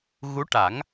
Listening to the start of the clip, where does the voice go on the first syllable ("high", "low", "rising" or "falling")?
rising